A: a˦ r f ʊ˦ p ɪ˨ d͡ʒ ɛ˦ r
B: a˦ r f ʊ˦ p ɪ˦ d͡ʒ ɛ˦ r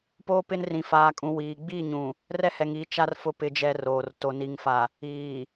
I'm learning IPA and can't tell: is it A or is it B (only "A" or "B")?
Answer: B